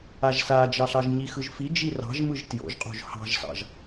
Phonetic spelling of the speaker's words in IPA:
a ʒ s a d͡ʒ ɑ ɬ ɑ ʒ ɲ i x ɯ ʒ f i d͡ʒ i r ɑ̤ ʒ m ɯ ʒ t j o̰ ʒ qʼ o̤ ʒ h ɑ̤ ʒ s ɑ̰ ʒ

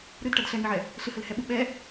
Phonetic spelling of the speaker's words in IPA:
ɾ ɨ d ʈ ɐ d ɬ ɛ ŋ ɨ ʕ ɛ | ɬ ɨ h ɘ l h ɛ ɓ u ɓ ɛ

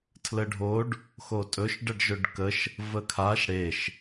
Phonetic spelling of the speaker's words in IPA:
tʰ l ə ɖʱ o ɖ | x o tʼ ɵ ʃ ɖ ə ɖ ʒ ɵ ɖ k ə ʃ | v ə kʰ a ʃ ɽ e ʃ

